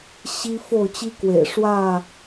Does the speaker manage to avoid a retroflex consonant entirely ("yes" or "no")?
no